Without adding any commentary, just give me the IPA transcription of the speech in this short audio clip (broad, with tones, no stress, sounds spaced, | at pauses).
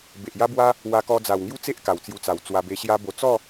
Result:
b e˨ ʔ j a˦ b w a˦ | w a˧ k ɔ˧ d͡z a˨˩ w ŋ j u˦ t͡s e˦ ʔ k a˨˩ w t͡s j u˧ t͡s a˨˩ w t͡s w a˧ b e˧ ɕ j a˦ b o˧ t͡s ɔ˥˧